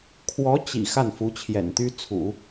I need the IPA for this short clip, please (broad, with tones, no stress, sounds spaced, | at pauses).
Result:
kʰ w ɔ˧˥ t͡ɕ ḭ˨˩ x a˥˩ n f u˧˥ t͡ɕʰ j ɛ̰˨˩ n t̪ y˥ t͡sʰ ṵ˨˩˦